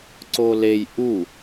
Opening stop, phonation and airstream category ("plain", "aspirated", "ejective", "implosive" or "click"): click